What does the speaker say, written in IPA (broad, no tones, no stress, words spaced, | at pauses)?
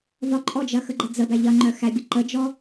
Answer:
vɒǃʼɔd͡ʒɐ xəɡ͡ǃəd͡zəbæ ʎɐŋ͡ǃœ xæbʲə ǃəd͡ʒɔ